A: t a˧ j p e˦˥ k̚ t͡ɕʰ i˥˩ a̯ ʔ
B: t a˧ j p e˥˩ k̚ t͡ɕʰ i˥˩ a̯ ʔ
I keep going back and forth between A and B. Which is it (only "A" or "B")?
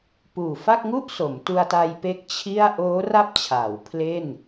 A